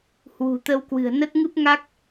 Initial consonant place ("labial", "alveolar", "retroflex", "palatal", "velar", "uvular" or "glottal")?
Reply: glottal